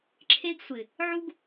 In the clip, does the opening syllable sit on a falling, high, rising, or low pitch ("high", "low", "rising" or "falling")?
high